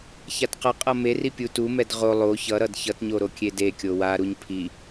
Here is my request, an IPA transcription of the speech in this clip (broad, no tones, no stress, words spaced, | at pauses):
çatqʌqʼʌ meri pʲutumɛd ʁo lˠo çʌɾʌd çʌtɲo ɾokʲedekʲo waɾuɲ pʰi